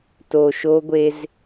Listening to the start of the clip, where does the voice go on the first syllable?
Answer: low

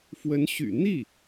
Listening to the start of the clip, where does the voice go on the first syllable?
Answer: rising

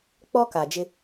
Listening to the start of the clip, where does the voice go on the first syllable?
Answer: high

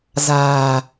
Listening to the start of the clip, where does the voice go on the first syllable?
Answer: low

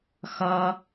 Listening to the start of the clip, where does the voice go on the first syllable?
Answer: high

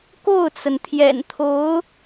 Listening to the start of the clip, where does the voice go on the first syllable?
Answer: falling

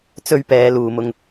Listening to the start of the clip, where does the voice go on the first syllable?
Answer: high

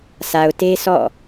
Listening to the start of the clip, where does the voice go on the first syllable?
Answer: low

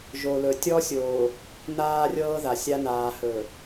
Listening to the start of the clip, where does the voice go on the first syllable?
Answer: low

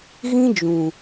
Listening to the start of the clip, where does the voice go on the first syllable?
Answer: high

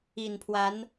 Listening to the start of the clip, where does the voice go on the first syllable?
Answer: low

